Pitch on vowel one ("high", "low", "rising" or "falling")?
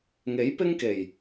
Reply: rising